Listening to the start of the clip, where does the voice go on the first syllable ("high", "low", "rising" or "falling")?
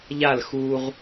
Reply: falling